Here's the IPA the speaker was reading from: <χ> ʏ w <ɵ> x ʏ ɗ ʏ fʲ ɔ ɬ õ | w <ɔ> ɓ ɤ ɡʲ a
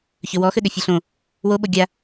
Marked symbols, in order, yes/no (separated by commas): no, no, no